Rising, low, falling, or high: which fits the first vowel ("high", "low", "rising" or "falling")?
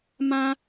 high